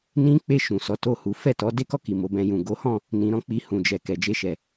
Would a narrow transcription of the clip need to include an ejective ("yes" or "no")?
no